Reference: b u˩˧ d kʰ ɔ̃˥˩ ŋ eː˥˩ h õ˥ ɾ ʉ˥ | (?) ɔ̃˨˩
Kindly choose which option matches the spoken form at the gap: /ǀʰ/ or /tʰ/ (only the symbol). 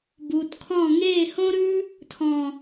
tʰ